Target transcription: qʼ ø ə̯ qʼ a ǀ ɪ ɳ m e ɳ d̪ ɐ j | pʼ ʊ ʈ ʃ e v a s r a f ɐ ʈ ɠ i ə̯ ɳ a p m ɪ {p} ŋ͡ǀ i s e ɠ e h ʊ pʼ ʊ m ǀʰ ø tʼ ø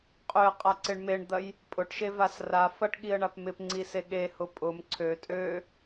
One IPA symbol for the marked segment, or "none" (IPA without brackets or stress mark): p